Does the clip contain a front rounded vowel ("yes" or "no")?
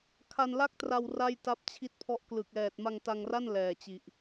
no